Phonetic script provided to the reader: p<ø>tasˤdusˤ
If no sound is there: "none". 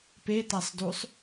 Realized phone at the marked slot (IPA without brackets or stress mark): e